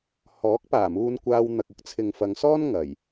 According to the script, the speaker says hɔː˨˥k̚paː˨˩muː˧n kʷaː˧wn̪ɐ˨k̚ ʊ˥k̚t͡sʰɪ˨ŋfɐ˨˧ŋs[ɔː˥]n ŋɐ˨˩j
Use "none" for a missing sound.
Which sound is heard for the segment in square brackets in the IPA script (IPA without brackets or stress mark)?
ɔː˥